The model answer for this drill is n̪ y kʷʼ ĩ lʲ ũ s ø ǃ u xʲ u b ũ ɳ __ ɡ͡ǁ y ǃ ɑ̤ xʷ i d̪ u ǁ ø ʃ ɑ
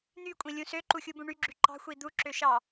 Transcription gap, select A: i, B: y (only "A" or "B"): B